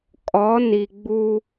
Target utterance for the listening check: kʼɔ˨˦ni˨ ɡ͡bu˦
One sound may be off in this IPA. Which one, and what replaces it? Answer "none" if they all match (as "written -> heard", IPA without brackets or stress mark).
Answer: none